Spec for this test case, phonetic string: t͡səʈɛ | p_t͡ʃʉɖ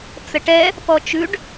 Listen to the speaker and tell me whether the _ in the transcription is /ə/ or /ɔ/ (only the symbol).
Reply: ɔ